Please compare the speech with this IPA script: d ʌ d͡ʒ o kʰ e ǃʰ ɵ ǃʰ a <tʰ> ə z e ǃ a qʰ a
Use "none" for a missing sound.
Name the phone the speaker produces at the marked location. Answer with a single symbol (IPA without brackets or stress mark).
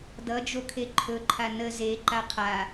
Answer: n